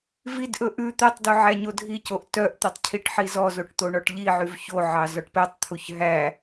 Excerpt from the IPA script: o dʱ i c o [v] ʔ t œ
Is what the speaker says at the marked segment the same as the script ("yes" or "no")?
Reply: no